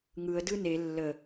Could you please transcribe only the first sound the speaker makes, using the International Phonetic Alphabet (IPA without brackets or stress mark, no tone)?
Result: ŋ